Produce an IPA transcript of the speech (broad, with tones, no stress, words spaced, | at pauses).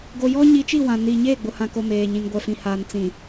ɡo˨jɔ˦ɲi˨˦t͡ʃi˦˨ wã˨niː˨ ɲeː˦˨ɡ͡bʊ˨hã˨ko˨ meː˨ ɲĩ˨ŋɡʷɛ˨fĩ˨ haː˨nt͡sĩ˨